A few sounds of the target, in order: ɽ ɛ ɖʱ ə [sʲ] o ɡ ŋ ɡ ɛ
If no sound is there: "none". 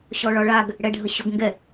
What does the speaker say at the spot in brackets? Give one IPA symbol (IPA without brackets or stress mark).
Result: ɕ